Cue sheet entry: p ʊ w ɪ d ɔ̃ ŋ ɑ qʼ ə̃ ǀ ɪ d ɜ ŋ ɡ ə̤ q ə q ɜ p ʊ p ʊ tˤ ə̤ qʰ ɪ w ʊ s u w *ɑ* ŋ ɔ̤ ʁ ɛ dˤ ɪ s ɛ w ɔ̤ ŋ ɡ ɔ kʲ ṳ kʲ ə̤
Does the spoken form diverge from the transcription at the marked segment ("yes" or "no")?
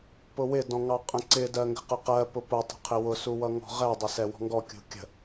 yes